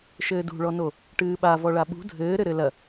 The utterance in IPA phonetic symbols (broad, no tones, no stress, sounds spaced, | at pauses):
ʃ ɘː d ṳ ɭ ɔ n o | ʈ ɨː ɓ a v ɔ ɭ a ɓ ṳ dʱ ɘː ɾ ɘ ɾ ɘ l ɐ